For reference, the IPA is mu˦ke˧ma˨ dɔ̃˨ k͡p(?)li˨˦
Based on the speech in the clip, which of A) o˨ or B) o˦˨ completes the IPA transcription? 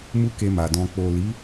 A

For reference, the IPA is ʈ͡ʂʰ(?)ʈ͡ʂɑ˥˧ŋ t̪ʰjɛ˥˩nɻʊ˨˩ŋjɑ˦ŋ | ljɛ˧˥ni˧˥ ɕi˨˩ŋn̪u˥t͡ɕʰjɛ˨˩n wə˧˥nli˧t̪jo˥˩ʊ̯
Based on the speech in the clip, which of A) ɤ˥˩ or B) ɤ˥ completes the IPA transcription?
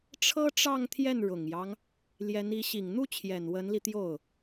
B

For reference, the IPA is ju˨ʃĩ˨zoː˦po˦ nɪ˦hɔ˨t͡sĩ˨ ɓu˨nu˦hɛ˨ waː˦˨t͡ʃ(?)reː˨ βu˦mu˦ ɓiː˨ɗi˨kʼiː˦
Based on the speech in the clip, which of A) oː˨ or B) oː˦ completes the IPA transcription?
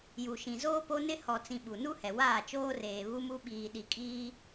B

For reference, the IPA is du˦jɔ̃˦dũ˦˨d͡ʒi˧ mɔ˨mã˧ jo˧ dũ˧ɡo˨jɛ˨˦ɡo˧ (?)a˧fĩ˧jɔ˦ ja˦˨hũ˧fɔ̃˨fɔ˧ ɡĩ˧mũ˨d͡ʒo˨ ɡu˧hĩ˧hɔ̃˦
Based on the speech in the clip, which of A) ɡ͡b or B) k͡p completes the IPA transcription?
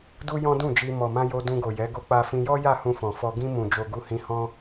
B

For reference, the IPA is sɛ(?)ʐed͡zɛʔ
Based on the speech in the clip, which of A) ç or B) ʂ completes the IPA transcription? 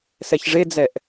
A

